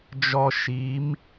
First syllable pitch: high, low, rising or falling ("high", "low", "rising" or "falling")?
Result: high